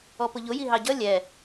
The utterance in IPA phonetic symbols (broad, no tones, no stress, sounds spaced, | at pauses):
ɔ p ʊ ʎ ʊ j i ɦ ɑ ɟ ʌ lʲ ɛ